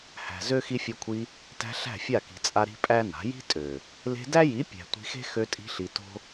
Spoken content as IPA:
hæ̤˨ zø˦ xi˧fʲo˧kʷʰi˧ | tæ̤˧ ɬæ̤˦˨fʲa˦˨ki̤˨t͡sʼa˧ ɾi̤˦pʼæ˦na̤˨˦ ji̤˦tʼø˨ | le̤˧dæ˦ji˨˦ pʲæ̤˨tʷi̤˧xe̤˦ xø˧tʼi̤˧ɬi˨ to̤˦

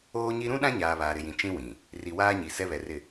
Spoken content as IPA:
oː˦ɲi˦ ɾũ˦ ɗã˦ɲaː˨ βaː˨ɾɪ˨jĩ˨ t͡ʃĩ˦wĩ˨ | ri˨waː˦ɲi˨ sɛ˦βɛ˨rɪ˨

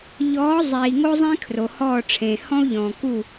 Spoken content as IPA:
ʎɔː˨˥ zˤiː˨ ŋo˥zˤẽ˥ kʰro˨hɔː˦˨ʈ͡ʂʰẽ˨hɔ̃˥u̯ ʎɔ̃ː˨ku˦˨

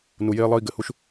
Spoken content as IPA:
nu˧jeː˥lˠəː˥i̯ ɡɘ˩hu˥ʃ

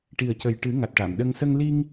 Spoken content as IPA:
ʈi˨˩ə̯cə˨˩jʈɨ˨˩˦ ŋa˨˩t̚ʈa˨˩˨mɗə˧ŋ sə˧ŋ li˧ŋ

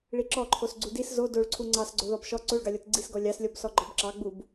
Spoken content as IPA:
ɭiǁɔǃʰos ɡ͡ǀudis zo doɭǀʰu ŋ͡ǀɑsɡ͡ǀo ðɔbʃɔ ǀoɭɡɑlʲɔt ɡ͡ǀisɡɔ lʲɑslʲɔb sɔɡ͡ǃɔbǁɑɡ͡bub

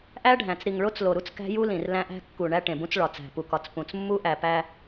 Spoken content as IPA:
ʔæ˦ɖʱæ̃˨t͡s ɾi˨ŋɭo˦t͡s lo˨ɾu˦t͡s kæ̤˦ju˦lĩ˨r læ̃˦ʔæ̤˦ kːu˨ ɳæ˦ʈẽ˨bũ˦t͡s ɭɒ˨t͡sæ̤˨ pu˨kɒ˨t͡s pũ˨t͡s mːu˦ʔæ˨pæ˦

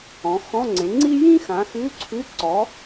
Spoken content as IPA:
ɔ̃˩˥xɔ̃˧˥˧ŋ͡ǀẽ˩˥ ŋ͡ǀi˥ jĩ˥xã˩˥xʉ˧˥˧ǀʰʉ˧˥˧ ǀɔ˩˥

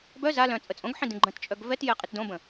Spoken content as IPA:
bœ za lœ̃ t͡sʼət͡sʼõɡħĩ dĩɡ͡ǃə̃tt͡ʃʼœɡ vɛtjɛ qʼitdõbə̃

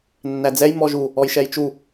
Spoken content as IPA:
nːæd͡zɛj mɔʒu | ɔjʃɛjt͡ʃu

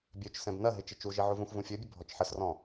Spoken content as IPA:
bʲøt͡ʃsɛ̃b nɐɦɪ t͡ʃɪt͡ʃuʒi ʕuvũxvũ fʲø bʲʊbʱɔt͡ʃħəsrɔ̃

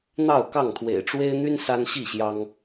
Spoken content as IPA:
n̪ɑ˥˨ʊ̯kɑ˥˨ŋt̪ʰwḛ˨˩ɪ̯ ʈ͡ʂwe˦ɪ̯n̪y˦n sa˦nɕi˥˨ɕjɑ˦ŋ

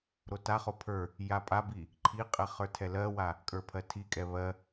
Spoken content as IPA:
ɾotaχo pʰə˞ | japʼabi | ǃʰiqʼɛ χə˞tʰɛlɜwa | kʼə˞pʰɜtʰikʼɛ βɜ

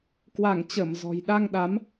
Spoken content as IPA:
kwa˧˩ŋt͡ɕə˧˩m zɔ̤˨˩jɗa˧ŋɗa˨˦m

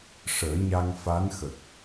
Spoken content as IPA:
ʂəː˨˩˦ɲa˧ŋfa˧˥nxə˨˩k̚

